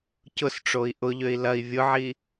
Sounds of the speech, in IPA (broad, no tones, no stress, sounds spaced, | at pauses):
c ʊ s ʈ͡ʂ o i̯ ʔ ʊ ʎ ø i̯ l ɐ i̯ vʲ ʊ ʕ i